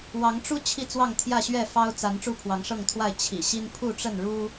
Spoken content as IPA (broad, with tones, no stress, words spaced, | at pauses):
wɑ˨˦ŋʈ͡ʂu˦ t͡ɕʰi˥˨t͡swɑ˥˨ŋt̪ʰjä˥˨ɕɥɛ˥˨ fɑ˦ʊ̯ t͡sa˨˦n ʈ͡ʂu˦pʰwɑ˨˦ŋʂɤ˥˨ŋt̪ʰwa˥˨ɪ̯ t͡ɕʰḭ˨˩ɕi˦n pʰu˥˨ʈ͡ʂə˥˨nɻu˦